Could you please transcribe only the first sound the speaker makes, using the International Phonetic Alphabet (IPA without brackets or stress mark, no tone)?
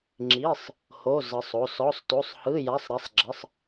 ŋ͡ǁ